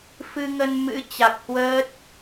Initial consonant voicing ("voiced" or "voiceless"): voiceless